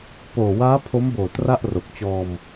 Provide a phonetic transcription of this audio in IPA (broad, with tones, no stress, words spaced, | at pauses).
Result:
poː˨˩waː˦˥ pʰo˦˥mboː˨˩ tra˥˩ʔro˨˩k̚t͡ɕɔː˧m